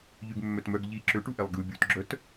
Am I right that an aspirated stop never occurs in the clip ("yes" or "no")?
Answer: yes